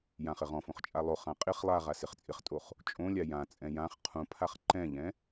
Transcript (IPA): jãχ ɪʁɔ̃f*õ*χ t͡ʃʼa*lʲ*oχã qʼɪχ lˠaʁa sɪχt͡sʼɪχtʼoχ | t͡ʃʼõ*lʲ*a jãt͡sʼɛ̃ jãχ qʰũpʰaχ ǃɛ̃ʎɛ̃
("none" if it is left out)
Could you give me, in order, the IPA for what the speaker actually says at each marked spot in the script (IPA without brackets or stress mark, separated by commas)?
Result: õ, lˠ, lʲ